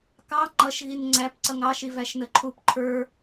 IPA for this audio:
k ɑ ŋ͡ǃ ʌ ʃ ɣ i n ŋ͡ǀ æ p ǀ ʌ ŋ ɑ ʃ i v æ ʃ n ə ǃʰ u p ǃʰ ə˞

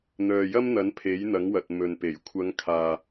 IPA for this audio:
n̪ œː˨ j ɐ˥ m n̪ ɐ˨˥ n pʰ e˨˥ j n̪ ɐ˨˥ ŋ w ɐ˨ t̚ m ɵ˨ n p e˨˩ j kʷʰ ɐ˨˧ ŋ kʰ aː˨

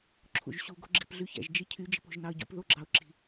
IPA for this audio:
ǁʰ ṵ ʒ ɕ u ɡ o̤ ɡ͡ǁ i̤ p ɮ y ç æ̰ ʒ d͡ʒ i cʰ y d͡ʒ e̤ p o̤ ʒ n ɑ ə̯ ɟ ṵ p ð o ɡ͡ǁ ɑ ʊ̯ ǁ i̤

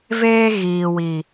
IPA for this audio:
v eː˦ ɣ iː˨ w i˨

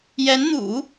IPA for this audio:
j ɛ˧˥ n n̪ ṵ˨˩˦

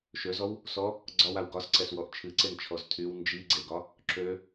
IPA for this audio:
ʃ ø z ɔ w | s ɔ | ɡ͡ǀ ɒ w a w ɡ ɒ s ǀ ɛ s w ɔ ʔ t͡ʃʰ ɨ ǀ e n t͡ʃʰ ɔ z tʰ y w n d͡ʒ i ɡ͡ǀ e ɡ ɒ | ǁ ø

